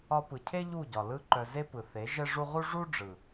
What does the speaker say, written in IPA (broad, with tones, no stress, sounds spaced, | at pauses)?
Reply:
ɒ˧ p ɯ˨ cʰ e˦ ʎ u˦˨ ɟ ɒ˨ l ɯ˦ ǃ œ˧ z e˦ p ɯ˨ θ e˨˦ ʒ ɛ˦ ʐ u˦ ʁ u˦ ʐ u˦ ɖ͡ʐ ɯ˨